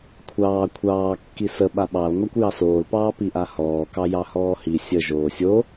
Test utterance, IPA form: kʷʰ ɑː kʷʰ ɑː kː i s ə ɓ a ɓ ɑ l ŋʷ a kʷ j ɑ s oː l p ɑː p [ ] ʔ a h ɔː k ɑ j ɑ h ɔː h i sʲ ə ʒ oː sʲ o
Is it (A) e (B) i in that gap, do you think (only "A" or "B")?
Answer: B